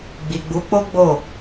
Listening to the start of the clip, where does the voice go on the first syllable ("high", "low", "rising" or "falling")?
low